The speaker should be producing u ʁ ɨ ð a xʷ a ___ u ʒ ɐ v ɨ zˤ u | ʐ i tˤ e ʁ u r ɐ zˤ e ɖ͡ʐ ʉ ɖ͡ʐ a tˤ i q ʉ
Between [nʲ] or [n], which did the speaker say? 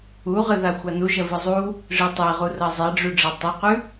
n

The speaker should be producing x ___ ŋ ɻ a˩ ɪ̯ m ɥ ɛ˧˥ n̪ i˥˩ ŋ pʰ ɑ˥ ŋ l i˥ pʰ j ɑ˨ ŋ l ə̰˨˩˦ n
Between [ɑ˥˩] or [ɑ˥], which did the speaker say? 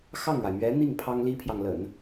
ɑ˥˩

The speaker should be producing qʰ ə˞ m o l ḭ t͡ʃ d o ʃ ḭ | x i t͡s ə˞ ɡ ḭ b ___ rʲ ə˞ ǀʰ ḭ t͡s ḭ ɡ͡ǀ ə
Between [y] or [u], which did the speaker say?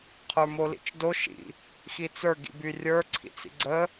y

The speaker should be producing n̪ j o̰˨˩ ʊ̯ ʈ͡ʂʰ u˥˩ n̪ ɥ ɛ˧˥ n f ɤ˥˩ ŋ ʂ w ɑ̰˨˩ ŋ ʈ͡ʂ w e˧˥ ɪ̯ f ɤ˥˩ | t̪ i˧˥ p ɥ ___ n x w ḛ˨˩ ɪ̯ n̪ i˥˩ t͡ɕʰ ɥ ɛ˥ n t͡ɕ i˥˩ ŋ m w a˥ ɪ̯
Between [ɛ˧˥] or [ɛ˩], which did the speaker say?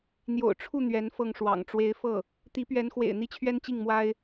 ɛ˧˥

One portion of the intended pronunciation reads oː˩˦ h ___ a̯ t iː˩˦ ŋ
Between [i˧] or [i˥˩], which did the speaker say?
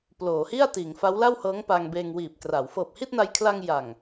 i˥˩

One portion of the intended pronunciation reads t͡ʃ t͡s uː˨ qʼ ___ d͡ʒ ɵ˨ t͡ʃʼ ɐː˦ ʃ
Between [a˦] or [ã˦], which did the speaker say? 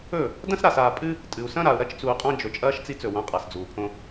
ã˦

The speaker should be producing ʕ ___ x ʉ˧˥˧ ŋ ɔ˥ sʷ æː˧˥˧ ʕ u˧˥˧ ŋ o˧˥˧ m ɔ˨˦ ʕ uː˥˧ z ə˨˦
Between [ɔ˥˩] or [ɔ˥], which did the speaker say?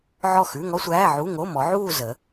ɔ˥˩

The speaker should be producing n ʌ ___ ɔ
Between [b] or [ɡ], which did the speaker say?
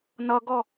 ɡ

